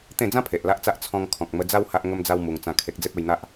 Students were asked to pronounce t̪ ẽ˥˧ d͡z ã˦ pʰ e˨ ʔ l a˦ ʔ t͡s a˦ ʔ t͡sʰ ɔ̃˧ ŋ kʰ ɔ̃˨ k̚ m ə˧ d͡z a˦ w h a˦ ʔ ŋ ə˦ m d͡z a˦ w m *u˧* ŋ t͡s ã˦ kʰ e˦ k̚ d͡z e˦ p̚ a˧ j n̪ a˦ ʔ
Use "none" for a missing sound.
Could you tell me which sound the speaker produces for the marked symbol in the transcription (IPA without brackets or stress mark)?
u˧